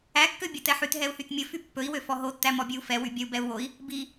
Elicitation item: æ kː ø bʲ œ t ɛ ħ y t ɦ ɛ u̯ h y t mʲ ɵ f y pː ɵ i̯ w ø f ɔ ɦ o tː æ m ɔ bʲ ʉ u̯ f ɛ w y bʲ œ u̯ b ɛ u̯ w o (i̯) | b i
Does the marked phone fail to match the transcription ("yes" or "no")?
no